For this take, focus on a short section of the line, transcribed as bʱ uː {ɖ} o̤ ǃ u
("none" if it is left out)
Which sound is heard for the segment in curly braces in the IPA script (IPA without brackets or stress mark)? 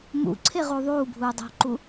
dˤ